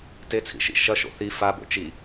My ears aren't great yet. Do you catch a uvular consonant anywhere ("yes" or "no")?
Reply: no